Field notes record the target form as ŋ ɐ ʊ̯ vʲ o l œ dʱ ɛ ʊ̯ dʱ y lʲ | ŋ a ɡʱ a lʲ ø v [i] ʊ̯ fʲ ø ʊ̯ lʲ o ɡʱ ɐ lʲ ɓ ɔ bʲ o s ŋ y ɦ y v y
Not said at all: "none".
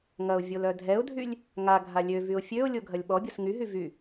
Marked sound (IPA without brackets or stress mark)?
y